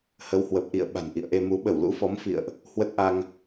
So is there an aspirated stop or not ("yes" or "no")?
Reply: no